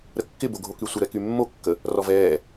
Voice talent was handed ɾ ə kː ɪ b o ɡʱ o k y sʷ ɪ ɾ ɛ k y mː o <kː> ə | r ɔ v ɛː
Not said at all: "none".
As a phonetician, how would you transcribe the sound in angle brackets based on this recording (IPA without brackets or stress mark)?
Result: kː